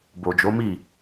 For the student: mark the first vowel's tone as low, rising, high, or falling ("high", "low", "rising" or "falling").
low